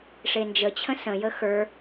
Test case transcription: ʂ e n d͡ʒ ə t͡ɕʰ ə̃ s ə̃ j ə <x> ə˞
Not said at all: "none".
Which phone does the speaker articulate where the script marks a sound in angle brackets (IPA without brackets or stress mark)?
x